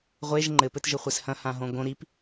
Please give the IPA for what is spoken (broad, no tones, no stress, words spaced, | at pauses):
ʁʷeʒ ŋ͡ǃɘpɘtʒɘχʷɛs hɐ̃hãɦõ ɡõ ɾip